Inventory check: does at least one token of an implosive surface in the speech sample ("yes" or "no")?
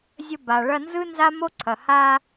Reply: no